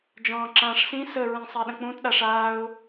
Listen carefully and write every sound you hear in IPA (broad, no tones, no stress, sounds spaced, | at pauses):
d͡ʒ ɔ̃ː ǁ ãː ʂ s ĩ s ə ɹ ĩ sˤ a ɗ ə̃ k͡p ũ t ɗ a ʂ aː ʊ̯